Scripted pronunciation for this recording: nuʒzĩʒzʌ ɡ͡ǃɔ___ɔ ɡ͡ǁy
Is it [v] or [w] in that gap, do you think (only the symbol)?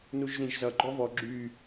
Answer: v